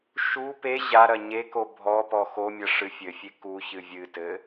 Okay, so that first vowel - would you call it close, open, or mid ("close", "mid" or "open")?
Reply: close